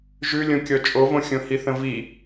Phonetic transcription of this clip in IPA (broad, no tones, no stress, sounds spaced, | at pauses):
ʒ ʉ lʲ õ kʲ ɔ t͡ʃʼ o v õ xʲ õ h i θ ə̃ v i